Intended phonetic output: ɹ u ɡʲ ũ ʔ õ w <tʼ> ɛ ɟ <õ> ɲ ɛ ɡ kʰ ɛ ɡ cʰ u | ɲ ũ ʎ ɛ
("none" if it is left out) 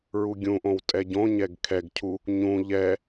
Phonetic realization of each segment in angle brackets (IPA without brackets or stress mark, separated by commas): tʼ, õ